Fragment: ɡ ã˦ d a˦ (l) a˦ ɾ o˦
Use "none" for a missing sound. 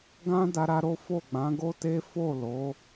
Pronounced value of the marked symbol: ɾ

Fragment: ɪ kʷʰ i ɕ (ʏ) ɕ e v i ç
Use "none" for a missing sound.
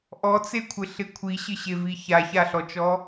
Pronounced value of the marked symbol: ɪ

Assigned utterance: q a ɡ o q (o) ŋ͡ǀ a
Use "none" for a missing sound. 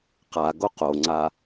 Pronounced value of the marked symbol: o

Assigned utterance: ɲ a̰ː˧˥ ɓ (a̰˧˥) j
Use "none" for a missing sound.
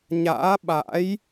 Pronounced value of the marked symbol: a̰˧˥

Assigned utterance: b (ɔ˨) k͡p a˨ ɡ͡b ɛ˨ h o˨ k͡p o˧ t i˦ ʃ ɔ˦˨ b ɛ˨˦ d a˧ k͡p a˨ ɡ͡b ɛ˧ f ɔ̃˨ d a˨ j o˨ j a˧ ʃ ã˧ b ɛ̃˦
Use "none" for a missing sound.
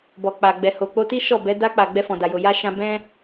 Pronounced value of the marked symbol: ɔ˨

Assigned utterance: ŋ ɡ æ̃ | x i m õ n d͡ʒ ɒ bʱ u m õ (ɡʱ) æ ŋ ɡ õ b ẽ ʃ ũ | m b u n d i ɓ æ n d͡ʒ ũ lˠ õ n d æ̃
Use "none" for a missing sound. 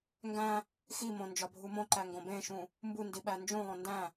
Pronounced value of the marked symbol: ǃ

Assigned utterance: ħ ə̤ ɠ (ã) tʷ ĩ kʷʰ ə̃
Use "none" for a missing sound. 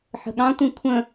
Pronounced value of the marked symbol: ɑ̃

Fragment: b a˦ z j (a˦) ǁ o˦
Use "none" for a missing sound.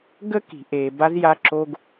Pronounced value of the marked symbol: a˦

